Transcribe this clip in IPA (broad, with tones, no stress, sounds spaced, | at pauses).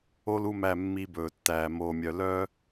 o˦ l u˦˨ m æ˦˨ mː i˦ b ɵː˨ tː æː˨ m oː˨ mʲ œ˨ l œ˦